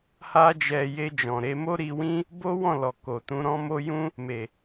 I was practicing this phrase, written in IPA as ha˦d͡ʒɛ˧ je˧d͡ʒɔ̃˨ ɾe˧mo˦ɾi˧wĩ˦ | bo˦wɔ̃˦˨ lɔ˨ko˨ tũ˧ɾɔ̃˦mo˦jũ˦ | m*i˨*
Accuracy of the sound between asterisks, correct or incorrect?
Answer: incorrect